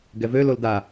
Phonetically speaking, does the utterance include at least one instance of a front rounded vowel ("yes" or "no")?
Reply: yes